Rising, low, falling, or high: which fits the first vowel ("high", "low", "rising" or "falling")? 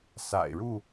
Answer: low